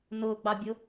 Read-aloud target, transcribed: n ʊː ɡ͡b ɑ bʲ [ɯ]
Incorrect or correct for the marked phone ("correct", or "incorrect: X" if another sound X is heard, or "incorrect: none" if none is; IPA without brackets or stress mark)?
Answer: incorrect: ʊ